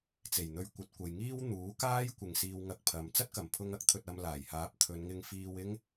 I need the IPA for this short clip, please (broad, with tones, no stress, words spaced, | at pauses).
t͡se˨˩jn̪ɵ˧ɥkʷɐ˨˥t̚ kʷɐ˨jŋiː˥w n̪uː˨˥kaː˥j kʷɪ˨ŋ siː˧wŋɐ˧k̚ pʰɐ˨m t͡sɐ˥t̚kɐ˨˩mpʰʊ˧ŋ ɐ˥k̚t̪ʰɵ˧t̚ ɐ˧m laː˨˩jhaː˨˥p̚t̪ʰɵ˨˧nŋɪ˧ŋ fiː˧wɪ˥ŋ